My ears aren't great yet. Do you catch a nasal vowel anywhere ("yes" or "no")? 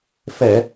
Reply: no